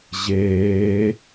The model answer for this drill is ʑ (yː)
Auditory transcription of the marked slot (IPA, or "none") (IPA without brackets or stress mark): eː